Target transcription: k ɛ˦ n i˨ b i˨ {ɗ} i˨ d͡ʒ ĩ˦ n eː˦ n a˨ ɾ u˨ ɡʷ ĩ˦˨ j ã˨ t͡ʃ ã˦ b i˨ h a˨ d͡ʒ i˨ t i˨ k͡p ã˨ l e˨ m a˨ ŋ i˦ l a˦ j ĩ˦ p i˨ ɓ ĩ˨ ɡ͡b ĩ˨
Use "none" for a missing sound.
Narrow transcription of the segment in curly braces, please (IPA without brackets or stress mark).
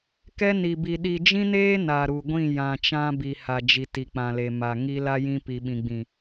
ɗ